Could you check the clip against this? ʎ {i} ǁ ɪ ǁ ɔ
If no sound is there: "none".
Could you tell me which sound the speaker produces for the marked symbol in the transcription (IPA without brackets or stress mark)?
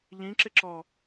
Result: ĩ